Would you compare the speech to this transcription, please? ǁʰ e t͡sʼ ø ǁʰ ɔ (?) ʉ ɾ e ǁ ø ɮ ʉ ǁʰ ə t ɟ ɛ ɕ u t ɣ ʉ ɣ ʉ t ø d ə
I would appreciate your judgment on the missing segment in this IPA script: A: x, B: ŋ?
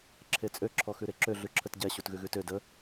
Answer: A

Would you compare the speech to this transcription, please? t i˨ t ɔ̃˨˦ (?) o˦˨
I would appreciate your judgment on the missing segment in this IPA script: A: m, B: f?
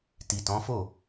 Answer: B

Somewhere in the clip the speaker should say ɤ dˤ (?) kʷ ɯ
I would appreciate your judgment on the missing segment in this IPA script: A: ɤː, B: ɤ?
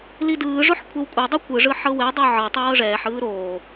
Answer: B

